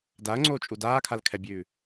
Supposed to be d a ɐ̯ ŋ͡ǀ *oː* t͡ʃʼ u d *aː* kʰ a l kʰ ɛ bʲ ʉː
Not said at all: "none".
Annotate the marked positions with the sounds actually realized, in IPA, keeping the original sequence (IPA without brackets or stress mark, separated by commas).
oː, aː